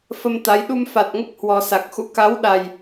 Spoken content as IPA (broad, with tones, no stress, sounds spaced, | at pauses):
f ə˧ m t̪ a˨˦ j ɗ u˧ m f a˨˩ t̚ ŋ ə˦˥ p̚ h w ɔ˨˩ s a˨˩ k̚ x ṵ˧˥ k a˨˦ w ɗ a˨˩ j